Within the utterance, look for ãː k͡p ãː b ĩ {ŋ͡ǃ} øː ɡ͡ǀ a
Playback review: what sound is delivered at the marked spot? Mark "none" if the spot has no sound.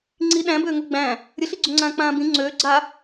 ŋ͡ǀ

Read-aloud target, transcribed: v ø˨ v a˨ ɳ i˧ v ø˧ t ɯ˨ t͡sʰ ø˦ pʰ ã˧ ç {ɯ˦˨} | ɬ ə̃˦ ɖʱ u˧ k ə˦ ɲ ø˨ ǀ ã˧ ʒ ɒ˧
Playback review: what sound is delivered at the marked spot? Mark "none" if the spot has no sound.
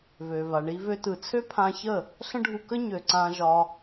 ə˦˨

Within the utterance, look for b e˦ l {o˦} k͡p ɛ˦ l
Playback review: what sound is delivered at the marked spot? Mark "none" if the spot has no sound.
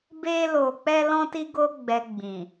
o˧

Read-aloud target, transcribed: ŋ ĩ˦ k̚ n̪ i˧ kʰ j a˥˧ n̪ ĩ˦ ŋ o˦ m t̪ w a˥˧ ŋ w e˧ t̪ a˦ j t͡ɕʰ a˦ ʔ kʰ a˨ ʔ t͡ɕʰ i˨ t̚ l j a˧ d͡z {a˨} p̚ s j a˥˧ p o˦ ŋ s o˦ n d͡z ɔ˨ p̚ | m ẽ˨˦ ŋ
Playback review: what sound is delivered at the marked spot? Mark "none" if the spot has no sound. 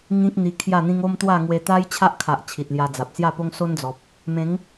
a˨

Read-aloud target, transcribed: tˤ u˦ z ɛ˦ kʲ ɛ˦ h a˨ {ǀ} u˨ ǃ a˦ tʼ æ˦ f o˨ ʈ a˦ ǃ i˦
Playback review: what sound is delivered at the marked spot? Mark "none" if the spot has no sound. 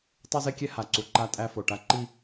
ǀ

